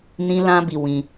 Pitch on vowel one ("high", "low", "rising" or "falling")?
high